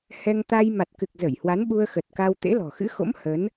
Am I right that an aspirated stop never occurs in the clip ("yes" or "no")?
yes